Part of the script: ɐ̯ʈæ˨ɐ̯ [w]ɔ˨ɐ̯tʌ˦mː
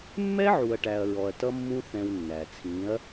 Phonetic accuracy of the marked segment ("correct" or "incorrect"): incorrect